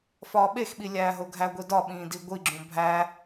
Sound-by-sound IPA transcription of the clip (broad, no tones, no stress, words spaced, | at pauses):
fɒːɓexɓi lʲæːɦoɡʱæɡʷi dɒɓĩː diɡʷiɡ͡ǁũ bʱæ